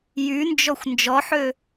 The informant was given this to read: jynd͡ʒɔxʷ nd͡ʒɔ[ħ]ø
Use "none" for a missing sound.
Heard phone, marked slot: ħ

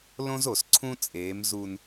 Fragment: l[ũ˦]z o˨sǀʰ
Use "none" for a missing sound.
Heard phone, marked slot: õ˦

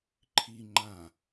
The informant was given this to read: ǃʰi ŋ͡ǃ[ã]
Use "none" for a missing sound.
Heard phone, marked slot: ã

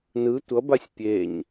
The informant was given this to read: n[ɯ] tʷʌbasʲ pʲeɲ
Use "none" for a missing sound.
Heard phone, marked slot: ɯ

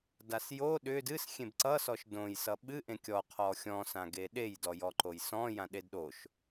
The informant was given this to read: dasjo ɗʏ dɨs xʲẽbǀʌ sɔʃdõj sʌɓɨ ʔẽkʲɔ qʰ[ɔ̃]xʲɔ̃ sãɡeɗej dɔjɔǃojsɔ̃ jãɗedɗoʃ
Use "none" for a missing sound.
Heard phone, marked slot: ɔ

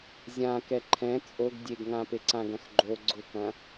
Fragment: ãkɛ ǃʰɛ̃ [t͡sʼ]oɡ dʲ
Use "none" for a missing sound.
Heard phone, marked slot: t͡sʼ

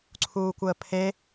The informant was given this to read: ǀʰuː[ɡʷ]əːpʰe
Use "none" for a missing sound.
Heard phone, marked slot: kʷ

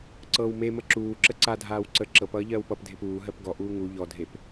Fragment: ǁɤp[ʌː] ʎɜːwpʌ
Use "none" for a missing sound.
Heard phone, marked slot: ʌː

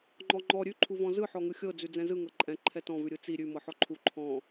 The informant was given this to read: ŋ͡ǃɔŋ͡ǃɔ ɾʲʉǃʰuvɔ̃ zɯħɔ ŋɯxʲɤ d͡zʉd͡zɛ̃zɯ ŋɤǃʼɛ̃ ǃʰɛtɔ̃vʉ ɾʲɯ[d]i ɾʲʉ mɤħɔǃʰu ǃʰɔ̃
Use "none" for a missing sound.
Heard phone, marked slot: t͡s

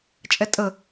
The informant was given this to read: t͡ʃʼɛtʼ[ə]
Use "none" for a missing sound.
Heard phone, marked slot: ə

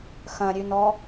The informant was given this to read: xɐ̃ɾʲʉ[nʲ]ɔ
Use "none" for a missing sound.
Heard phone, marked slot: n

